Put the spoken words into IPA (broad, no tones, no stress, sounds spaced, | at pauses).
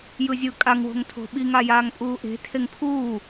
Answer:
j ɯ zʲ ɯ kʼ a ŋ w o̤ ŋ tʰ o̤ ɓ i ŋ a j aː ŋ pʼ uː ʔ e̤ tʰ e ŋ pʰ uː